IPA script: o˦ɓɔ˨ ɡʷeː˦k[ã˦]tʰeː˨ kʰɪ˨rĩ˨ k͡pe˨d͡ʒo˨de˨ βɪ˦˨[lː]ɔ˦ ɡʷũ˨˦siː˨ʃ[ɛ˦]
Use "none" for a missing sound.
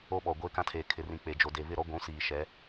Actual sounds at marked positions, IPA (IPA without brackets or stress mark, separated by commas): ã˦, ɾ, ɛ˨˦